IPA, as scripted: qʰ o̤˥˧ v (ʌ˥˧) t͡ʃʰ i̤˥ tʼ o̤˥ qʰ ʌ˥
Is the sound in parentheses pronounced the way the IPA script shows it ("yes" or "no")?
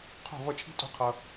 yes